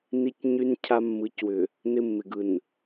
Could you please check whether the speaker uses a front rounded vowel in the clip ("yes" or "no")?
yes